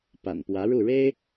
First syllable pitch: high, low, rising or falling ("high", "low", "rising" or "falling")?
low